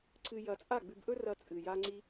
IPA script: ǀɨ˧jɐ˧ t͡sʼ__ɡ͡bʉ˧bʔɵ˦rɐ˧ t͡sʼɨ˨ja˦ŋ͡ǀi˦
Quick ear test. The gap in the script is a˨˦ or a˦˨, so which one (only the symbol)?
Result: a˦˨